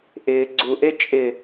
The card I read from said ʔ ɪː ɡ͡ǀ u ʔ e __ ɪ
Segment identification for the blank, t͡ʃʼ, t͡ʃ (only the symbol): t͡ʃʼ